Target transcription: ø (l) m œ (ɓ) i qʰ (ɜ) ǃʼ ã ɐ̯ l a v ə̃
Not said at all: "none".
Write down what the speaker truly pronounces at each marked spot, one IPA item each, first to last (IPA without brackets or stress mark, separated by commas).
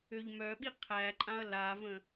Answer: ʎ, ɓ, æ